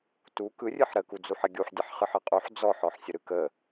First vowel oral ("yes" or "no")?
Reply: yes